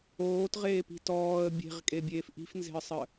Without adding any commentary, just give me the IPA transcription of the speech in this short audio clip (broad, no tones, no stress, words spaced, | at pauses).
oːtʁeːpi̤ tɔːə̯ bʲe̤ʁkʼebʲeːf ʔi̤fnze̤ə̯sˤə